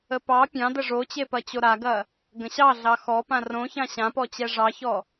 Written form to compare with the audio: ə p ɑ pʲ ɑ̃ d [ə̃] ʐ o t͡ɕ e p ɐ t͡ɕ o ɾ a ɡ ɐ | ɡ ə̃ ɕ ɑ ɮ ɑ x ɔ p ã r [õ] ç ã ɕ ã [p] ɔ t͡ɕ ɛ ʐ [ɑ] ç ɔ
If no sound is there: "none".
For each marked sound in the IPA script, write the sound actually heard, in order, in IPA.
ə, õ, p, ɑ

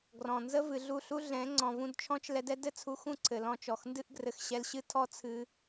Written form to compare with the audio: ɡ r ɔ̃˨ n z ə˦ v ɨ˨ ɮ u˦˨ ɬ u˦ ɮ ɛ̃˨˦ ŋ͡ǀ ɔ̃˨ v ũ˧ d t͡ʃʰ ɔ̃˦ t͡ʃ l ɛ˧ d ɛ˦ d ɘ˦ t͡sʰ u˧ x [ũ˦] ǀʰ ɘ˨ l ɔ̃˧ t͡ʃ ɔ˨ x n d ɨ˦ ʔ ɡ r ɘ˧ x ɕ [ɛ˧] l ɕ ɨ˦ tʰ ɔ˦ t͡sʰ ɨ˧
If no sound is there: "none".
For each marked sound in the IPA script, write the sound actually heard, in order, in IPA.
ũ˦˨, ɛ˧

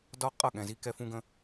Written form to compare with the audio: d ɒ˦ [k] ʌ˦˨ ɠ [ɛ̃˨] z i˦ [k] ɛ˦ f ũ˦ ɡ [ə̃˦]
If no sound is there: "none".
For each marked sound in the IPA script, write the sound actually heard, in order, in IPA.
qʼ, ɛ̃˨, k, ə̃˦

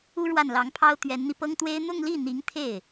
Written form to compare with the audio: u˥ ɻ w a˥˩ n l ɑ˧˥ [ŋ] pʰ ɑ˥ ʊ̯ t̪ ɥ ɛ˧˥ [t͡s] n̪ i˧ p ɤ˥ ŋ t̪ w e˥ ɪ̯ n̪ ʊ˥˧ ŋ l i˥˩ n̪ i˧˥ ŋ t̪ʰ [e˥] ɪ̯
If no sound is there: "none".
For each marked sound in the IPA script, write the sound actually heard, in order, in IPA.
ŋ, n, e˥˩

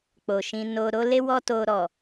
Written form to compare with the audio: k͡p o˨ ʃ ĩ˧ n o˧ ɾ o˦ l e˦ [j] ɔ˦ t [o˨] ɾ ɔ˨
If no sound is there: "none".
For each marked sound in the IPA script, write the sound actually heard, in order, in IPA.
w, o˧

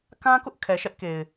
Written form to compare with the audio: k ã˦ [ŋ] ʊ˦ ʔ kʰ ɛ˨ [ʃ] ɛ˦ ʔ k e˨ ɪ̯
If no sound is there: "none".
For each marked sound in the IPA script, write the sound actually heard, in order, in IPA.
k, ʃ

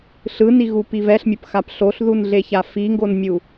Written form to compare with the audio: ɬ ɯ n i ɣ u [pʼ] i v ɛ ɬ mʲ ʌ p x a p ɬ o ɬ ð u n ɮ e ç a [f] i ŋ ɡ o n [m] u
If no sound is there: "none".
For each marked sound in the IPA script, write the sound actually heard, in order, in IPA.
p, f, mʲ

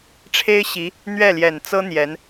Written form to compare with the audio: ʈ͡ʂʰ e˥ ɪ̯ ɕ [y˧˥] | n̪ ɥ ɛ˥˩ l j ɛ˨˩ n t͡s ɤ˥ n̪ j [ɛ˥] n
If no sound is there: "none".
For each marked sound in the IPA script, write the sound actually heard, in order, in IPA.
i˧˥, ɛ˧˥

